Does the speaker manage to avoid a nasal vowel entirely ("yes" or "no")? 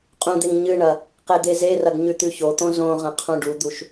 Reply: no